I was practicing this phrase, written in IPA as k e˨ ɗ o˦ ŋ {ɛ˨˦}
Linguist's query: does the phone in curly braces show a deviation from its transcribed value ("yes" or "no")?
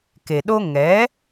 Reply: no